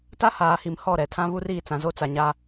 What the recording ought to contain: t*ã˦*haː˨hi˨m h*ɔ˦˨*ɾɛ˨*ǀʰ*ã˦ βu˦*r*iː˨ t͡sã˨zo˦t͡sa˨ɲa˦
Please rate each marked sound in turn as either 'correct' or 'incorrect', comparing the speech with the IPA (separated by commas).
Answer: incorrect, correct, incorrect, correct